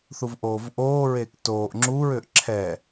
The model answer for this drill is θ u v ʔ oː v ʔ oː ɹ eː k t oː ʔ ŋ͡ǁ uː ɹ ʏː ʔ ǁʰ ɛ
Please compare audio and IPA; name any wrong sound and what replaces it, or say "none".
none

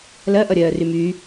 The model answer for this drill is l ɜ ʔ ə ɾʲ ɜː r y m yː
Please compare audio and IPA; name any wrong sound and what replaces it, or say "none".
ə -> ʌ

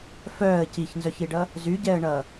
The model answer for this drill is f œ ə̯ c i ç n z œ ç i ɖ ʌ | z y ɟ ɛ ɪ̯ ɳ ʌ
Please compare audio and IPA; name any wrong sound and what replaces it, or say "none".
ɪ̯ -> ə̯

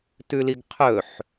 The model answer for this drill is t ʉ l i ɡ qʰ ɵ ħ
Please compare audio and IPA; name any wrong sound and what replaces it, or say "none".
none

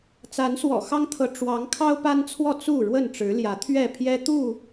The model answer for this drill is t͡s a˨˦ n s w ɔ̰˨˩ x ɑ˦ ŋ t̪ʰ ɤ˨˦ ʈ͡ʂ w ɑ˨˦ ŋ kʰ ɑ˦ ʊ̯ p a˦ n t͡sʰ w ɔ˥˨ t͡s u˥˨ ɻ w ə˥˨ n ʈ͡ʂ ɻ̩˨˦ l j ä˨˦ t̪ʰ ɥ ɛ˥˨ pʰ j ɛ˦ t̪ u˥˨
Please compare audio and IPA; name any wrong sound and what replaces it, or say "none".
none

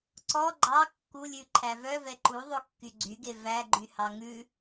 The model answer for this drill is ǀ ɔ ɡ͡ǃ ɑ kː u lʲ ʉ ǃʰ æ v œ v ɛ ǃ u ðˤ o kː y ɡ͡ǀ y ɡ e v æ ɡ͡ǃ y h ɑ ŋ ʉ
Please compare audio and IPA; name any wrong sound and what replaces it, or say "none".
none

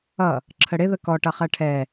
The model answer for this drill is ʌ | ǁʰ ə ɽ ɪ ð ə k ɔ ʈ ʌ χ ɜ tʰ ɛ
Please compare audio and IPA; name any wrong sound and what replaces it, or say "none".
tʰ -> ʈʰ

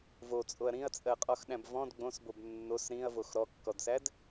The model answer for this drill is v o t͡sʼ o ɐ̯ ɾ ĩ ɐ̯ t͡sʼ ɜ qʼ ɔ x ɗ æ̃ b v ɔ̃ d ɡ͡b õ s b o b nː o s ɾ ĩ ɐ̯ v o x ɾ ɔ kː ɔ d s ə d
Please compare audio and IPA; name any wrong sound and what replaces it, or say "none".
ə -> æ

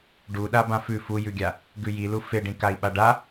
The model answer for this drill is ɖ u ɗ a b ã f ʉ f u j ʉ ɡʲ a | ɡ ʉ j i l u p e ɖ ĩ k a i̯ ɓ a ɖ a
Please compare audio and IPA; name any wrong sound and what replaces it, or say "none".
p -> f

